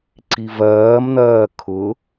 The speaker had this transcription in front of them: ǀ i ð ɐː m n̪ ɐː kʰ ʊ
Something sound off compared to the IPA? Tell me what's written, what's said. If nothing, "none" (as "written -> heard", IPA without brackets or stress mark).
ð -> v